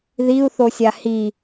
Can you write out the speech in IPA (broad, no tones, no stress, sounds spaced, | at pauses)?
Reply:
ð i u̯ θ o sʲ a h i